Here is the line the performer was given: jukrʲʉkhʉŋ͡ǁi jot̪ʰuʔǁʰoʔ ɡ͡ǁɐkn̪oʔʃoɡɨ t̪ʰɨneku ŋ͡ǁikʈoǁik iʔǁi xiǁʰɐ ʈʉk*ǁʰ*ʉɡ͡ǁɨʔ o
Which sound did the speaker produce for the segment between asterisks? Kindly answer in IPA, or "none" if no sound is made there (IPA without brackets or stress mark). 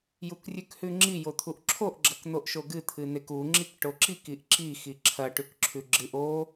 ǁʰ